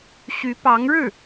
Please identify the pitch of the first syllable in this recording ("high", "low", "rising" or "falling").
rising